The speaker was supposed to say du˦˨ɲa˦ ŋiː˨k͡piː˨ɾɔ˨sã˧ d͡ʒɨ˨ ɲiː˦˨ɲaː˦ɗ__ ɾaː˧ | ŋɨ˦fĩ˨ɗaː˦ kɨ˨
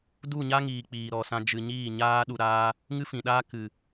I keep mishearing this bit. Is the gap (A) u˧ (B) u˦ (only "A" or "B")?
A